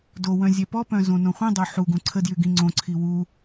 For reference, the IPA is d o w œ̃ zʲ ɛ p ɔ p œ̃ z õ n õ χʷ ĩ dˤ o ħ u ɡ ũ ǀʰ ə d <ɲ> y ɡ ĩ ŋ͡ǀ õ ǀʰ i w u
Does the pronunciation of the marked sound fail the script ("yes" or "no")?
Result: yes